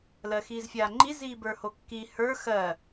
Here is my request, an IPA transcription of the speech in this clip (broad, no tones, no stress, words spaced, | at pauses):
lɜxiːzfʲaːŋ͡ǃi ziːbə˞hokːi hə˞ xɜ